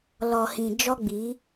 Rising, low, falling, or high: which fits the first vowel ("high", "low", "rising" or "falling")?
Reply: low